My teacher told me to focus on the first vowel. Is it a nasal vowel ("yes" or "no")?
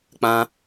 yes